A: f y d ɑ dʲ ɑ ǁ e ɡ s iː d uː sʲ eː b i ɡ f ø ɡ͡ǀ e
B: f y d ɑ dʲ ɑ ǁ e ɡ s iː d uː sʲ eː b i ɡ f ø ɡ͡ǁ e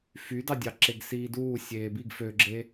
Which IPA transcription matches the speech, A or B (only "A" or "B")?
B